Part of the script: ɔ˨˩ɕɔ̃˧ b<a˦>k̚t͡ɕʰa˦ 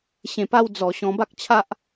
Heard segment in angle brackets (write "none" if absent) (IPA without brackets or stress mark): a˦